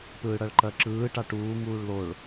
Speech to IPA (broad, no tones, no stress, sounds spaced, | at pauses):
p ɯː ɽ ɐ ɭ ǃ ɜ ǁ ɯː ʈ a ʈ uː ŋ uː ɭ l o ɭ